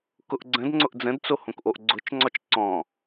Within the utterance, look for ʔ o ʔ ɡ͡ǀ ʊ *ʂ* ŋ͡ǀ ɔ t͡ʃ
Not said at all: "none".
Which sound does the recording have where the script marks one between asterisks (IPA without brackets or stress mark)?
t͡ʃ